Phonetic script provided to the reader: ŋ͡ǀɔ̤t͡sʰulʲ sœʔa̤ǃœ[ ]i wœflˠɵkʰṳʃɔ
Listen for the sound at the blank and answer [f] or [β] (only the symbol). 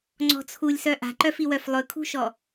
f